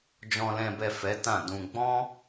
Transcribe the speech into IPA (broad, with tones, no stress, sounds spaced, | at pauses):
d͡ʒ ɔ̃˨ l ɛ̃˨ b ɛ˨ f ɛ˨˦ t ã˦˨ d ũ˧ ɡ͡b ɔ̃˦